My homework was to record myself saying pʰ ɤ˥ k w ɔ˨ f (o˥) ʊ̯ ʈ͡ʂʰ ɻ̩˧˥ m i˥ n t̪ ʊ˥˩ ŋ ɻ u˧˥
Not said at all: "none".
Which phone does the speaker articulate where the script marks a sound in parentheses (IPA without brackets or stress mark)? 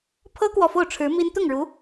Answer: o˥˩